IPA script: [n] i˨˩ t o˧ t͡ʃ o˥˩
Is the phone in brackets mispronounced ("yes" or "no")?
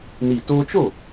no